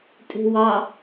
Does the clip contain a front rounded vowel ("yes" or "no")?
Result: no